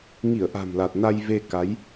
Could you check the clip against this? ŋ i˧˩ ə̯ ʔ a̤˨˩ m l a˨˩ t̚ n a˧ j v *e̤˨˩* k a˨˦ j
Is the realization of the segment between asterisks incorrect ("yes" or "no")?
yes